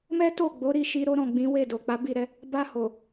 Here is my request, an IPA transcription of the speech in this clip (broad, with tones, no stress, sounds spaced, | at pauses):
m ɛ˦ t o˦˨ ɡ͡b o˨˦ ɾ i˦˨ ʃ i˧ ɾ o˦ ɾ ɔ̃˦˨ ɡ͡b ĩ˨˦ w e˦˨ d o˨ k͡p a˨˦ b i˦˨ ɾ ɛ˧ | b a˧ h o˨